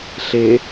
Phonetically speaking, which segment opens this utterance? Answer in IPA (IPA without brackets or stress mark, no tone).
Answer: ɬ